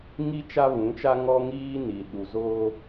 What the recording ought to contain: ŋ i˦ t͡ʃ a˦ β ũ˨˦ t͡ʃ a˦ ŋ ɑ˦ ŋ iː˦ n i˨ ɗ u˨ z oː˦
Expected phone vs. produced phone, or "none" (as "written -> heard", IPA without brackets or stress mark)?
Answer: ɑ˦ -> ɔ˦